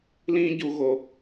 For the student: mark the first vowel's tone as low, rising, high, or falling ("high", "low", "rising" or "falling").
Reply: high